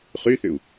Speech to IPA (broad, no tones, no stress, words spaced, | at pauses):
χyθʏu̯